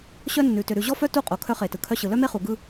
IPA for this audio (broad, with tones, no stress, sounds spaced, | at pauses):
ɕ œ˦ nː ʉ˨ t ʏ˨ ɾ ʉ˨ ʑ ɔ˦ f œ˦ t u˦˨ qʼ o˨ kʰ œ˦ χ e˨ t ɯ˨ kʰ œ˦ ɕ ɯ˨ l œ˦ m e˦ χ u˨ ɡ ɯ˦